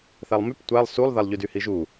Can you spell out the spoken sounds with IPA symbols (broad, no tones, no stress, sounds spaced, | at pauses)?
θ a lˠ m y p tʷ a lˠ s u lˠ ð a lˠ ʎ y d y h i ʒ u